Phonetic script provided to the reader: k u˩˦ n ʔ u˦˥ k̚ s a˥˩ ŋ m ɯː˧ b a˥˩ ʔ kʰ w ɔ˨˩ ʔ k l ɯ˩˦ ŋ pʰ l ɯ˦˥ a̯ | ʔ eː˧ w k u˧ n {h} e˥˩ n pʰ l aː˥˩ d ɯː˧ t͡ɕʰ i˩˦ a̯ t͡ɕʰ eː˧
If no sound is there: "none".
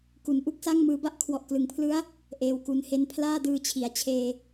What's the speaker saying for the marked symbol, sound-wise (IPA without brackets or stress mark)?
h